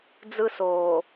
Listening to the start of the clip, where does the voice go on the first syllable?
high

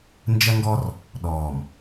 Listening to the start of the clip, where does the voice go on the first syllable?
high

